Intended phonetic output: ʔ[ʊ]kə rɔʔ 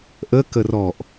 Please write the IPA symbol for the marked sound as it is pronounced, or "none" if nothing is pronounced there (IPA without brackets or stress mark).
ə